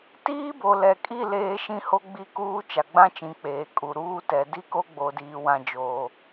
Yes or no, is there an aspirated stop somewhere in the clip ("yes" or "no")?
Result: no